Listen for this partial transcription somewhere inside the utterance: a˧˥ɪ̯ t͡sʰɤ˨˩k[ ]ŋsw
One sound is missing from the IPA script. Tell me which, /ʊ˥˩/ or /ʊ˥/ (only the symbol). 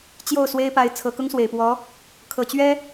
ʊ˥